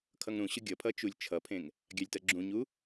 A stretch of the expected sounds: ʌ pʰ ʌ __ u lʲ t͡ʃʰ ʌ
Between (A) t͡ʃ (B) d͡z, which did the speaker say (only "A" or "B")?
A